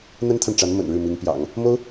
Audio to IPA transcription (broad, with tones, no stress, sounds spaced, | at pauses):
n̪ ə˥ n t̪ʰ a˨ n ʈ͡ʂ a˧˥ n m ə̰˨˩ n ɻ ɻ̩˥˩ m i˧˥ ŋ p j ɑ̰˨˩˦ ŋ | m o˥ ʊ̯